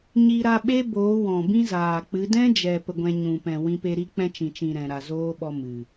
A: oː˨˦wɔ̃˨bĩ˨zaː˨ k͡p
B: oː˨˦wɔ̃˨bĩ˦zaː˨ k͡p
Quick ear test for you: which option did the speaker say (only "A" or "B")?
B